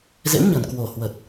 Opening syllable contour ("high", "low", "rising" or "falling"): rising